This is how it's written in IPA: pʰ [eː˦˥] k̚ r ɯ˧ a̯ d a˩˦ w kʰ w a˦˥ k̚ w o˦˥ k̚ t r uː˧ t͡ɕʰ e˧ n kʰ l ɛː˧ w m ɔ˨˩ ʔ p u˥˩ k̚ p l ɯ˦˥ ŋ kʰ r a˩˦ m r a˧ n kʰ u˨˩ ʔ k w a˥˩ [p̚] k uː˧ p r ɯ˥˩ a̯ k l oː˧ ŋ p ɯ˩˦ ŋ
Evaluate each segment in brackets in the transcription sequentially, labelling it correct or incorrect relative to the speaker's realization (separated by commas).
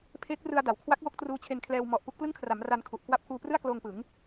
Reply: correct, correct